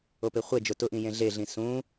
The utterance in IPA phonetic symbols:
o p ɪ χʷ e d͡ʒ ʊ t ʊ ʔ ĩ j ẽ ɮ e ɮ ĩ s ũ

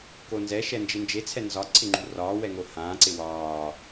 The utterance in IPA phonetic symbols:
k o n z ɛ ʃ ɛ n d͡ʒ ɪ n d͡ʒ e t͡sʰ ɛ n z ɒ ǀʰ ɪ ŋ͡ǃ ṳ r ɒː w ɛ ŋ o h ãː ǀ ɪ w ɒː

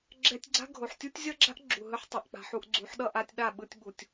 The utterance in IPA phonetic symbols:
ɡ͡ǁ ɛ˧ tʲ ɡ͡ǀ a̤˦ ɡʱ o˨ ħ tʲ u˦ tʲ zʲ ʌ˦ ɡ͡ǁ a̤˦ ʔ ɡ͡ǁ u˨ ɦ ɯ˦ ħ tˤ ɯ˨ ʔ k͡p a̤˧ ħ u˧ ʔ ɡ͡ǀ u˨˦ ħ ɗ ʌ˦ ʔ a˧ tʲ ɗ a˦˨ ɓ ɯ˧ tʲ ɓ u˨ tʲ

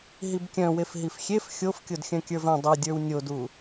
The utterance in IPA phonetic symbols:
ɦ i b kʲ œ̃ w e f ɦ i f xʲ e f xʲ o f kʲ o d xʲ œ̃ kʲ ə˞ v œ̃ dˤ o dʲ ə˞ w nʲ o d u

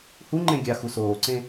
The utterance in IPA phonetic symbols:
h u ŋ͡ǃ ẽ ɡʲ a x u s oː ǀ ẽ

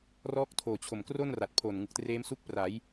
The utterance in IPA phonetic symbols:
r ɔː˦˥ k̚ tʰ oː˨˩ t͡ɕʰ o˨˩ m k r o˥˩ n r a˨˩ t̚ pʰ o˨˩ n ŋ ɯ˨˩ k̚ t r eː˦˥ m s u˦˥ k̚ p r a˩˦ j

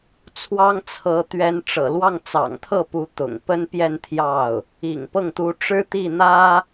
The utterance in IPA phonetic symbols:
t͡sʰ w ɑ˥ ŋ t͡sʰ ɤ˧˥ t̪ ɥ ɛ˧˥ n ʈ͡ʂ ɤ̰˨˩ l w ɑ˥˩ ŋ t͡s ɑ̰˨˩ ŋ t̪ʰ ɤ˥˩ p u˧˥ t̪ ʊ̰˨˩ ŋ p ə˥ n p j ɛ˥˧ n t̪ʰ j ɑ˥˩ ʊ̯ | ḭ˨˩ ŋ p ɤ˥˩ ŋ t̪ u˧˥ ʈ͡ʂ ɻ̩˥ t̪ i˥˩ n̪ ä˥

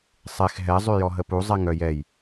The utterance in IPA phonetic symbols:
sˤ e x ɦ ɛ zˤ y j ɔ ɦ ə p u zˤ ɛ ŋ œ j ɛ j

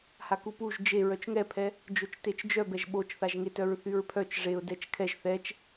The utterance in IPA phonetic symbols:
h a k u p u ʒ d͡ʒ e ɹ œ t͡ʃ ŋ ɛ pʰ ɛ | d͡ʒ o t͡ʃ t e t͡ʃ d͡ʒ œ b ɛ ʒ ɓ o t͡ʃ θ a ʒ ŋ e t œ ɹ θ y ɹ pʰ œ t͡ʃ ʐ e ʊ̯ d ɛ t͡ʃ kʰ ɛ ʒ θ ɛ t͡ʃ

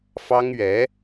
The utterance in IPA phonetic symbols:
f ɑ˥ ŋ ɥ ɛ˧˥

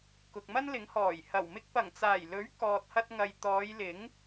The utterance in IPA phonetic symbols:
k ʊ˨ k̚ m ɐ˥ n l ɪ˨˥ ŋ h ɔː˨˩ j h ɐ˨˩ w m ɪ˧ k̚ p ɐ˨˩ ŋ t͡s aː˨˩ j l ɵ˨˥ ɥ k ɔː˨ t̚ h ɐ˧ t̚ ŋ ɐ˨ j t̪ ɔː˨˧ j l ɪ˨˥ ŋ

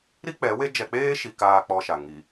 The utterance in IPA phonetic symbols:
ɾ i˦ k͡p ɛ˨˦ w e˦ d͡ʒ ɛ˨ k͡p eː˦ ʃ i˨ k aː˨ k͡p ɔ˦ ʃ a˨ ŋ i˨

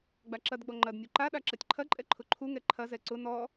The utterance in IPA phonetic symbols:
ɡ͡b a ǁ ɐ d ɡ͡b ɔ ŋ͡ǃ ɐ d nʲ u ǃ a ɗ a ǁ ɐ tʲ ǃʰ ɐ ǃʼ ɛ ǃʰ ʊ ǃʰ u ŋ ɛ ǃʰ ɐ z ɛ ǀ ʊ n ɔ

